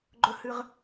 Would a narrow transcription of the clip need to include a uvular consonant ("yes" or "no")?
yes